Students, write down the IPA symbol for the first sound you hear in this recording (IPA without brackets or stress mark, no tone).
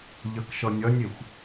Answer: ʎ